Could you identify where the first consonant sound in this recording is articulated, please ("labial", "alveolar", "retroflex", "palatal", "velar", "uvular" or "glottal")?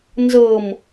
alveolar